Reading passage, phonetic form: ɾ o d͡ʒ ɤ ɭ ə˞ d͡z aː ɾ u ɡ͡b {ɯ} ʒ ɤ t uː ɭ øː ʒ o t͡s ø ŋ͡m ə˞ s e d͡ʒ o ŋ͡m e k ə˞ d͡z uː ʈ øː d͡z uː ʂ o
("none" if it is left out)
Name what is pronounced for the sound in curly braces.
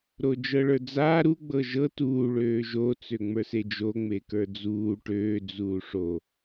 ɤ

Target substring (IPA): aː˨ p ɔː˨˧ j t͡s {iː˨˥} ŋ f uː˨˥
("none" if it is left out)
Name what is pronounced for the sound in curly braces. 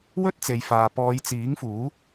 iː˨˥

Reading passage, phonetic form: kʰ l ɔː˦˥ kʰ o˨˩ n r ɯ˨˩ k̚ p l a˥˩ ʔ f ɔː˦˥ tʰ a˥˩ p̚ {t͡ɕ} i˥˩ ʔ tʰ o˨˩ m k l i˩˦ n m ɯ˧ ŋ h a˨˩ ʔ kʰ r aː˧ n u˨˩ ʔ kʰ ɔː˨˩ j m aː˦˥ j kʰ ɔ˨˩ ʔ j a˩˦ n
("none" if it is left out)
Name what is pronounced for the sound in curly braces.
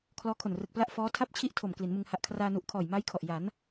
t͡ɕʰ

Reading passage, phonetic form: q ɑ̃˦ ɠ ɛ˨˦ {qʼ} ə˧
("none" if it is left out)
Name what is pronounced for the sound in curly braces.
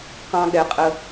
qʼ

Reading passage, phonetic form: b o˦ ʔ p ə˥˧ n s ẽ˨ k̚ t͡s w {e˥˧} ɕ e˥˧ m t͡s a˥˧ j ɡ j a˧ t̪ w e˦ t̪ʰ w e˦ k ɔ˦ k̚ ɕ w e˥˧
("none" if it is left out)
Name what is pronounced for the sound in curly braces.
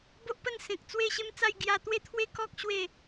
e˥˧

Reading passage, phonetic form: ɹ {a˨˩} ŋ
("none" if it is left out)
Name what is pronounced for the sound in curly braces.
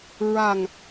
a˨˩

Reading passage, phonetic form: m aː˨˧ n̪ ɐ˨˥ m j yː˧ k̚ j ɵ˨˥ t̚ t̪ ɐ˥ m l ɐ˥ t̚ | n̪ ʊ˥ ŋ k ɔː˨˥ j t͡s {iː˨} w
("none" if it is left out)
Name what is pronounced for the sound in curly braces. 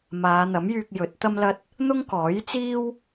iː˥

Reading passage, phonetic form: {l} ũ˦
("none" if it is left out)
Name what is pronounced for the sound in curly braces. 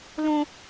l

